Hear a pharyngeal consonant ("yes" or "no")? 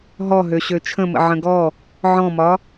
yes